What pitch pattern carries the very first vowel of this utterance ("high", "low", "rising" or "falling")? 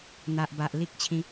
low